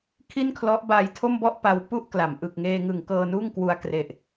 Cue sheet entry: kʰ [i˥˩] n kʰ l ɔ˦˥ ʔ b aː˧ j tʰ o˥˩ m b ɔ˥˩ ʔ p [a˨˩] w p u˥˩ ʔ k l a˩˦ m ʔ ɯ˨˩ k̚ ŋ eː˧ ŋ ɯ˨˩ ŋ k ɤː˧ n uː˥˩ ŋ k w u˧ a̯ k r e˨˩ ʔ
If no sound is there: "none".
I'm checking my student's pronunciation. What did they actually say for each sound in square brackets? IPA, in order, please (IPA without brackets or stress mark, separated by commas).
i˥˩, a˧